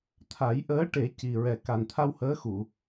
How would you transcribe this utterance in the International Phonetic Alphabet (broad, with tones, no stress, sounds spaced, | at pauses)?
t̪ʰ a˨˩˦ j ʔ əː˧˥ ʈ e˨˩˦ c i˨˩ ɹ ɛ˨˩ k a˨˩ n t̪ʰ a˧ w h əː˧˥ x u˨˩˨